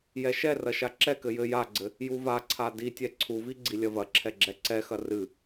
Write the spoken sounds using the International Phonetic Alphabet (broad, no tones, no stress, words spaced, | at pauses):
jɛʃɛrɐ ʃaǁɛkɘ jɘ jaɡ͡ǀɘ | juvaǀʰa ditʲɛ ǀʰuvi ɡ͡ǀilʲɐvɐǁʰɛ ɡ͡ǁɛǀɛxɐ rɨ